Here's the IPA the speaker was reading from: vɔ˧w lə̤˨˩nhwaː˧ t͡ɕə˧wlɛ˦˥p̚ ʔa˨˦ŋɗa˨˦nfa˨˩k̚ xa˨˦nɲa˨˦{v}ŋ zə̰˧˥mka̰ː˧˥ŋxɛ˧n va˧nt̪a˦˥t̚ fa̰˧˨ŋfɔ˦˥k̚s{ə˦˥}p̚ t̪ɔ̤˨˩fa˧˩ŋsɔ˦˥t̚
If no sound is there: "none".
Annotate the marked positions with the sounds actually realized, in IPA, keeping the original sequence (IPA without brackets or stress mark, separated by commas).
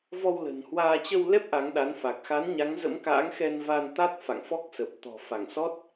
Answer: none, ə˨˩